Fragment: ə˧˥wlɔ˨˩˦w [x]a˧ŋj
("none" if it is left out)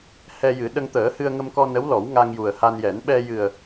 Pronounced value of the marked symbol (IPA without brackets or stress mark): ŋ